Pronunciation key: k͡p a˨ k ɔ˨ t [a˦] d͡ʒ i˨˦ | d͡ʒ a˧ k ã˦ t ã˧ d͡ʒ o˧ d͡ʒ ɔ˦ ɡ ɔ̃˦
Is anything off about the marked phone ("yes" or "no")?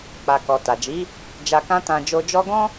yes